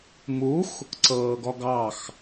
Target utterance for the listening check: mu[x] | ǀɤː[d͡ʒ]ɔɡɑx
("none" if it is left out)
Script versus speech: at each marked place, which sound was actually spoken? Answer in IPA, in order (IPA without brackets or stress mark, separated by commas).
x, ɡ